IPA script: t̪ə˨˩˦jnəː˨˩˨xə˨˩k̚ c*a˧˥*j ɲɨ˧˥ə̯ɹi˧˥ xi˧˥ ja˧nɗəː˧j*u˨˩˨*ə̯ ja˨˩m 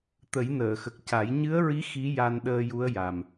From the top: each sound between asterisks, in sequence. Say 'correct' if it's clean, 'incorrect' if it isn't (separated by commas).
incorrect, incorrect